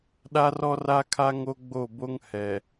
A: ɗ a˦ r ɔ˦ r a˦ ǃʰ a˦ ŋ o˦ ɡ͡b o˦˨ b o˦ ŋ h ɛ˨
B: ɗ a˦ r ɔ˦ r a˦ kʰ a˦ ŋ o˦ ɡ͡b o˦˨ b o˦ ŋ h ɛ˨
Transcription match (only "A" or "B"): B